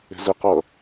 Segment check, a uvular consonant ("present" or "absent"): present